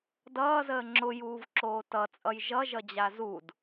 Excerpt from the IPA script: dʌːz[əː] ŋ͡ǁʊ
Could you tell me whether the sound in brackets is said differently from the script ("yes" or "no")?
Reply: no